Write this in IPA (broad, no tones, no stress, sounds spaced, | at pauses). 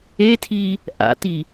e tʰ i | ʔ a̰ t i